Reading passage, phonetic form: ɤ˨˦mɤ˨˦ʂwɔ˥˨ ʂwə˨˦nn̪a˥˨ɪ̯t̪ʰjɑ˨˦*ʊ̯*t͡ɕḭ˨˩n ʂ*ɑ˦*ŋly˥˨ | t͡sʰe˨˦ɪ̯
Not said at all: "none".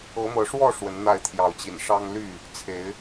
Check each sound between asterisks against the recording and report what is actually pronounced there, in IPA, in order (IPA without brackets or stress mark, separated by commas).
ʊ̯, ɑ˦